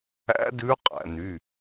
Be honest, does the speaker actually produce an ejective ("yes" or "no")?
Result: yes